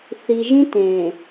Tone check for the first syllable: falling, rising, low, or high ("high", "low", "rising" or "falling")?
low